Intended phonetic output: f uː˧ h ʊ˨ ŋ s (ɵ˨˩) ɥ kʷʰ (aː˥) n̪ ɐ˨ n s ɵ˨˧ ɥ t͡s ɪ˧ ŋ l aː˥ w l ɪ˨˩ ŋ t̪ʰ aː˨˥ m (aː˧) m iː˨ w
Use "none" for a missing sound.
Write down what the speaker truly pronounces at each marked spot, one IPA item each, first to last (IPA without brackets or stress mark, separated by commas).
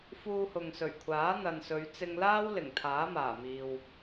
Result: ɵ˨˩, aː˨˥, aː˨˩